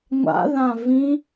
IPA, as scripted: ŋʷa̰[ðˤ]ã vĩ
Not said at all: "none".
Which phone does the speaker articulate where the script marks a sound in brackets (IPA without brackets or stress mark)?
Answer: ð